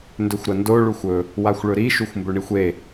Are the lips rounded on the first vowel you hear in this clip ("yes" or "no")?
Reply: yes